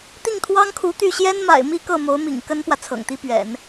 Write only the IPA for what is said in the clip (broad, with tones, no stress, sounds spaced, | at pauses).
t̪ i˥˩ ŋ t̪ʰ w ɑ˥ ŋ kʰ u˧˥ t̪ y˥˩ ɕ j ɛ˥ n m a̰˨˩ ɪ̯ m i˥˧ k ɤ˥˩ m o˧˥ ʊ̯ m ḭ˨˩ ŋ k ə˥ n p w ä˨ t͡sʰ ɤ̰˨˩ ŋ t̪ i˥ p ɥ ɛ̰˨˩˦ n